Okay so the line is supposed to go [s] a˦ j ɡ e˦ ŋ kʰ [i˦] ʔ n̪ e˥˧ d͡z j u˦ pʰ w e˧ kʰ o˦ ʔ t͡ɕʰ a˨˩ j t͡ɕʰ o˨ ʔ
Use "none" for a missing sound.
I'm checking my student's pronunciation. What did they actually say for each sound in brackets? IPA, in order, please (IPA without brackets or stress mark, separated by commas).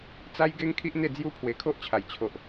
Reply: t͡s, i˦